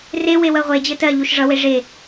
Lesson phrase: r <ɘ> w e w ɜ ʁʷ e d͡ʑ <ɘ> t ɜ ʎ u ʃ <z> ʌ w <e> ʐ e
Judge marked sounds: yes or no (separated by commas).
no, yes, no, yes